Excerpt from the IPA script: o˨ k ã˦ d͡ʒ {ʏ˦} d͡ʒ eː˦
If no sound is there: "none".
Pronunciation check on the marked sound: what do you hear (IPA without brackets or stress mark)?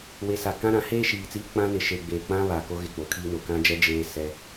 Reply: ɛ˦